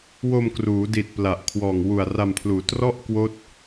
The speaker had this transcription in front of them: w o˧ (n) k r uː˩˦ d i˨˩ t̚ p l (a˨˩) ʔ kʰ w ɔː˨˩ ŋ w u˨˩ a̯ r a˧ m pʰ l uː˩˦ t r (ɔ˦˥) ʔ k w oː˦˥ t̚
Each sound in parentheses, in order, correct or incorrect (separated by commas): incorrect, correct, incorrect